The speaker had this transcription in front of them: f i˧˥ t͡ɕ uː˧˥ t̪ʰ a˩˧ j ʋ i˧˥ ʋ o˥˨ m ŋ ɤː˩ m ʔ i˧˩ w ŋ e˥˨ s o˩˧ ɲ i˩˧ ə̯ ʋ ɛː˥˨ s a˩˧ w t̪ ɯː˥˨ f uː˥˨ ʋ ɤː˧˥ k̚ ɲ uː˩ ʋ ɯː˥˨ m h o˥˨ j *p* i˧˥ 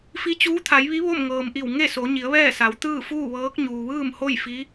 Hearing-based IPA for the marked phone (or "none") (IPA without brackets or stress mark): f